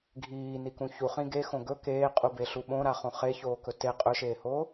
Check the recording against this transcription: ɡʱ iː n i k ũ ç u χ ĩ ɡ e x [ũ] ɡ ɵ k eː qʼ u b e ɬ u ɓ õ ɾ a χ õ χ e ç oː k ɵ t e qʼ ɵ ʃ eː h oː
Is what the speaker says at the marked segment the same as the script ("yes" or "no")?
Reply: no